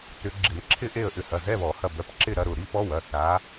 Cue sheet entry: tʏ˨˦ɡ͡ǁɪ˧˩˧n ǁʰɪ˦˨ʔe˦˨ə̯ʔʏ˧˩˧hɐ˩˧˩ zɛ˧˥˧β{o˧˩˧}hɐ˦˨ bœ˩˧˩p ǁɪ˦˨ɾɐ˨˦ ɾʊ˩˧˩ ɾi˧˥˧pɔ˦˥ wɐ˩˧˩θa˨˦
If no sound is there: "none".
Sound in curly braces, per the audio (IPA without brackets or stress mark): ɔ˧˩˧